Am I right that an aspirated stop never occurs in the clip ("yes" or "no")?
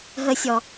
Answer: yes